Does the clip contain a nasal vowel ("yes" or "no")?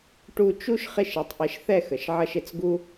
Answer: no